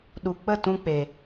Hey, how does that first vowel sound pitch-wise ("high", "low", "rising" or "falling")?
low